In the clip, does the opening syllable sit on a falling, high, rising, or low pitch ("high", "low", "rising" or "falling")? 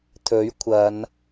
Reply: rising